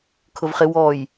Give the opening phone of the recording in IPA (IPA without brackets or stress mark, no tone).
kʰ